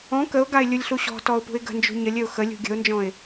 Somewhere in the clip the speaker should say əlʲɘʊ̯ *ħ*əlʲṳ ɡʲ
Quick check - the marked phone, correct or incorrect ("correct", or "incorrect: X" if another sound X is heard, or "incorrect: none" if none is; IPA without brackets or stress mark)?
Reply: incorrect: x